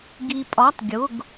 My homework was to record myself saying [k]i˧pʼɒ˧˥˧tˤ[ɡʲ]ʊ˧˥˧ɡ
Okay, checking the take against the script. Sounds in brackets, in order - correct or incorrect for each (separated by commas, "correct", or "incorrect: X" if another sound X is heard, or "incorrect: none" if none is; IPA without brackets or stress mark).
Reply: incorrect: ɡ, correct